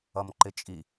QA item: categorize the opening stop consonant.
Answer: click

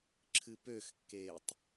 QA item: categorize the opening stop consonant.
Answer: click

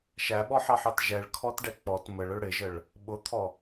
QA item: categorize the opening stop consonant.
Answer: implosive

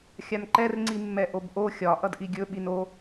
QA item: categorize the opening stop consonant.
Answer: click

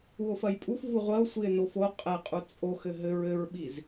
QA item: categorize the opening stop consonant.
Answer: ejective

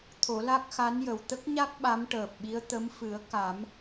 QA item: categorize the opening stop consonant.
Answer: aspirated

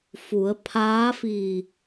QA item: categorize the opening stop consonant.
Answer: aspirated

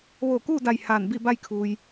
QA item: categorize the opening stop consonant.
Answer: plain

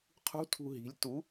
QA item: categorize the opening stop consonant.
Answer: aspirated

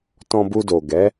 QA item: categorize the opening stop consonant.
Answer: plain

